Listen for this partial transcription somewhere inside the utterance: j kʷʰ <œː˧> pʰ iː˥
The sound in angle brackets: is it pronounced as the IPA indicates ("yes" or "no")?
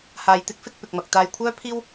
no